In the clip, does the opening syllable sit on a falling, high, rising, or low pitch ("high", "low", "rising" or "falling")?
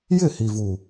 falling